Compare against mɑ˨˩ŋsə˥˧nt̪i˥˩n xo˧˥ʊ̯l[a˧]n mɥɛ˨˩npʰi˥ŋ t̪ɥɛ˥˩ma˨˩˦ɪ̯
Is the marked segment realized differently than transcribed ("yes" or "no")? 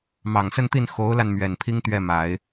no